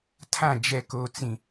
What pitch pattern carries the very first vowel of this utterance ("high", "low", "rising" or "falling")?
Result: falling